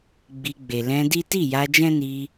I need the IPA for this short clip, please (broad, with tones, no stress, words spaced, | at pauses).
ɡ͡bi˧ɡ͡be˨ lɛ̃˧di˦ ti˦˨ja˧d͡ʒɛ̃˦ ni˧